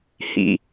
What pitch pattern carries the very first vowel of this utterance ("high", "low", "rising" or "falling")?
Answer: low